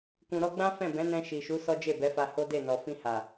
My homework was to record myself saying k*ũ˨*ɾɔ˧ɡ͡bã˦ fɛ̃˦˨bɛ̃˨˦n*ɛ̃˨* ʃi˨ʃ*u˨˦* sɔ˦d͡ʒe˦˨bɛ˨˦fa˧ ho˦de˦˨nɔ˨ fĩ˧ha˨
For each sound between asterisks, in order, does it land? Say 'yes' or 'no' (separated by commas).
yes, no, yes